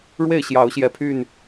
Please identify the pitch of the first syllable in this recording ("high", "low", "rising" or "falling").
falling